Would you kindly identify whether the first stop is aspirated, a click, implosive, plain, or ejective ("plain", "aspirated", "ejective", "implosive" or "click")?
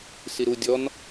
plain